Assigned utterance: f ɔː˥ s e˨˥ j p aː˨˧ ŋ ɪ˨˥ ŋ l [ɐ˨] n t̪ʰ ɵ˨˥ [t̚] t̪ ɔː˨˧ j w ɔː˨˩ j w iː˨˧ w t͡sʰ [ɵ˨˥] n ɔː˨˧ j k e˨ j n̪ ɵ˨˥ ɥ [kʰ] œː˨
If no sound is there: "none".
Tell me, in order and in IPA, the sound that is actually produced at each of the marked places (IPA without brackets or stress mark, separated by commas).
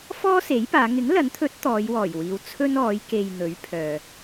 ɐ˨˥, t̚, ɵ˥, pʰ